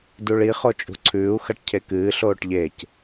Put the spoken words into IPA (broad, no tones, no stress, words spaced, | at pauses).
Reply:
duɭi χot͡ʃʼṳǀʰʉːu̯ xɐʈcʰekɨː ɬoːʈʎec